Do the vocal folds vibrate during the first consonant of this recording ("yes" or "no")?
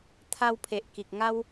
no